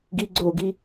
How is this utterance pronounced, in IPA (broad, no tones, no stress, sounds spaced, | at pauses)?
ɡ i ɡ͡ǀ o ɡ i